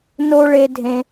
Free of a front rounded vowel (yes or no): yes